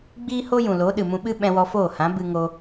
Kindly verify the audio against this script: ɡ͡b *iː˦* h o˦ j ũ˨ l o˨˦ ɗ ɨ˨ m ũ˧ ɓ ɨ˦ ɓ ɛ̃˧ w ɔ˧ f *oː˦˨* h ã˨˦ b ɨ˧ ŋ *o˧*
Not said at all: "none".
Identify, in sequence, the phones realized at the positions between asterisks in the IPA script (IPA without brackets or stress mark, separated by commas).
iː˦, oː˦˨, o˧